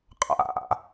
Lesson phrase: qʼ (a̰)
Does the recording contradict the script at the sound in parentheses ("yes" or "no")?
no